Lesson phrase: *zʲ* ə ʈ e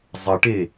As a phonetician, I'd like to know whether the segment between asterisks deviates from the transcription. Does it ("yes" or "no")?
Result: yes